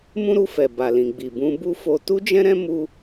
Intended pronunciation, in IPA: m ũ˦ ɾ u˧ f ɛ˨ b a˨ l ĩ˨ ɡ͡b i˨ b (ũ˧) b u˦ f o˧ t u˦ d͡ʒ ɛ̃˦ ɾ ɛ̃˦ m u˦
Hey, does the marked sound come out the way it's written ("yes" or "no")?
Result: yes